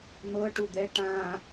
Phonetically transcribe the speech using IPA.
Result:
n̪ ɤ ʈ u d̪ ɛ ʈ ã

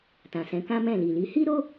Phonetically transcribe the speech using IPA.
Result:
t ã˨ s ɛ̃˨˦ k ã˦ m ɛ̃˦˨ l i˨ l i˨˦ h i˦ ɾ o˦

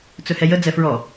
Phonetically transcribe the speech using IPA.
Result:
t͡s ɵ h ɛ j ə d͡z ɛ f ɹ ɔ

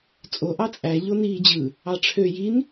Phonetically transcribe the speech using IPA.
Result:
t͡sʼ o ʔ ɑ t͡sʼ æ ʎ o n iː d͡ʑ ɯ | ɑ ʈ͡ʂʰ ø j i n

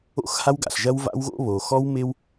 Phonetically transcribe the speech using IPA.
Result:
o̰˦ x h a˦ w ɡ a̰˨ ɬ ʒ ɐ˦ w v a̰˦ w ɣ o̰˦ β o˨ x ɔ˦ w m ɪ˦ w

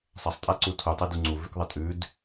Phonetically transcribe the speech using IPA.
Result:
sˤ ɐ sˤ tʼ a ǀ u tʰ u tˤ e d u ŋ͡ǀ u v ʉ k ðˤ ɐ tʼ ʉ d

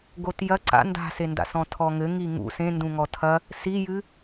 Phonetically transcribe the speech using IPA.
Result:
ɡ o t j ɐ ǀ a̰ n d a̤ s e n d a̰ s ɔ̃ tʰ ɔ ŋ ɘ ŋ i ŋ ṵ s ẽ n d ũ ŋ ɔ tʰ ɐ | s i j ɨ

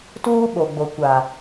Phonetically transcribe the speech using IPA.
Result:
t uː˦ ɓ o˨ ɡ͡b o˨ kʷ a˨

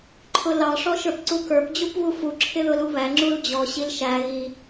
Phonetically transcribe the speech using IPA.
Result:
ǃʰ ʊ l ɑ ʂ ɔ ʃ ə˞ p ǀ u k ə˞ p d͡ʑ u p β u f u ǁʰ ɪ ð ʊ l u β æ ŋ͡ǁ u l d͡ʑ ɔ ɕ i l ʃ æ ɣ i

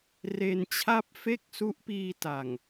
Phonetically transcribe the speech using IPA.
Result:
r e˧ n t͡ɕʰ a˥˩ p̚ f e˥˩ k̚ s u˦˥ ʔ p iː˧ t a˨˩ ŋ

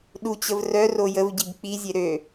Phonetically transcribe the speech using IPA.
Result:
ɗ u t͡ɕ ə v r œ r o j ə v ɟ i b k͡p i zʲ e ɾ ø

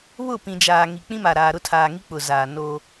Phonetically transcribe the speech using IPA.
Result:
β ʊ˦˨ p ĩ˨ d͡ʒ aː˨ ŋ i˨ k͡p ĩ˦ m a˨ ɾ aː˨ ɾ ʊ˦ tʰ aː˨ ŋ i˦ k͡p ʊ˨ z aː˨ n oː˦

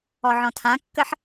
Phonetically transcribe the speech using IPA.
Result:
ɔ ʕ ɔ̃ tʰ ã kː ə ħ

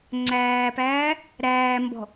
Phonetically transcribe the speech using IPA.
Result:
ŋ͡ǀ æː p æː | ɾ æː m b ɔ̤

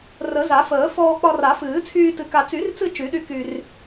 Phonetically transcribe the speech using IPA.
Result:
r ə˨˩˦ z a˨˩˦ f əː˨˩˦ f ɔː˧ k͡p ɒ˧ r a˨˩˦ f ɨː˨˩˦ t͡sʰ yː˧ t ɨ˧ k a˧ t͡s y˨˩˦ r t͡s ɨ˧ t͡ʃ y˨˩˦ ɗ y˧ k y˧ r

